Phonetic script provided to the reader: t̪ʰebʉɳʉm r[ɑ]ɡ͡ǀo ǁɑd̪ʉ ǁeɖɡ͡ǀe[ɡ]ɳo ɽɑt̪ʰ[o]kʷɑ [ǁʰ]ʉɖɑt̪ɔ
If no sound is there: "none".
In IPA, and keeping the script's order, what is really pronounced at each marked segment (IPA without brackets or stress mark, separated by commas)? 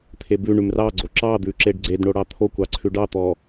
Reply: ɑ, d, o, ǀʰ